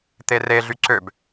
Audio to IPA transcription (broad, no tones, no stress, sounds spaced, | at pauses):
t̪ e r e ɮ y ǀ ø b